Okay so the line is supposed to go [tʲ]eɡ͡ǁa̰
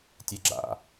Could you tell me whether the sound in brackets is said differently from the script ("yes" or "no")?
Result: no